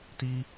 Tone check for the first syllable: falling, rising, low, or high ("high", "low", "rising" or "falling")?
high